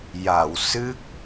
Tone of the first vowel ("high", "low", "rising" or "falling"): low